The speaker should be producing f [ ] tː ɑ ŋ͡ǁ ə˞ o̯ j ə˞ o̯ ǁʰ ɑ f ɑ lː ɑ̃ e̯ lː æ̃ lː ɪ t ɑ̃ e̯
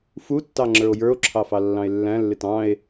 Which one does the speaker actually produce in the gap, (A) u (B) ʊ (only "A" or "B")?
A